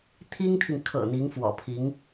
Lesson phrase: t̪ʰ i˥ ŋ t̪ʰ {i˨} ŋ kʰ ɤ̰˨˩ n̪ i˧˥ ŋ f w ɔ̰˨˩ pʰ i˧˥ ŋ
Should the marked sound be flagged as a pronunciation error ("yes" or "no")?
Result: no